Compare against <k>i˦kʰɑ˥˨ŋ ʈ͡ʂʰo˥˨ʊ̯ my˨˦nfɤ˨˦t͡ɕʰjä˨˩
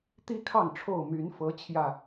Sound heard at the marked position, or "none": t̪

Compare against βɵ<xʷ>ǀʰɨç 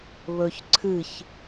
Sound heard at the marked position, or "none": ç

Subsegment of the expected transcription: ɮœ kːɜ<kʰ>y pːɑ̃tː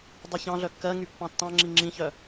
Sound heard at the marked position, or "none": ŋ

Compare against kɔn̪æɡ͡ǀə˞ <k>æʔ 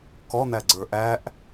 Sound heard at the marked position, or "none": ʔ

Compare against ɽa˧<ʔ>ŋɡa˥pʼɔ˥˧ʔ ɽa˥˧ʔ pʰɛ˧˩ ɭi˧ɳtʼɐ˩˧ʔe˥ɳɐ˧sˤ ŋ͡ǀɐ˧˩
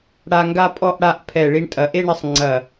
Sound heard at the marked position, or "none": none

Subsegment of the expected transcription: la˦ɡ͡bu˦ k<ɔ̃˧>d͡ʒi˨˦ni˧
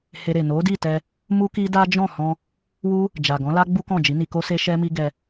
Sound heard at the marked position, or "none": ɔ̃˦˨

